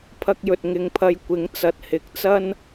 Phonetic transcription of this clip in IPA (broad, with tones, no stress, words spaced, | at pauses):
pʰɐ˧k̚jɵ˨t̚ ŋɪ˨˧ŋpʰɐ˧j kʷɪ˨˥ŋ t͡sɐ˨t̚hɪ˨˥k̚t͡sɐ˥n